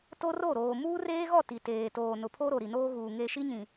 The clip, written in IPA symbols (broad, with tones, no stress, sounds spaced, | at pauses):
t o˦ r o˦˨ ɾ oː˨ m uː˦ r eː˦ ɣ ɔ˦˨ t i˨ t eː˨ t oː˨ n ʊ˨ pʰ o˦ ɾ o˨ ɾ i˨ n oː˦ ɣ uː˨ ŋ e˨ ʃ i˦ ɲ ĩ˨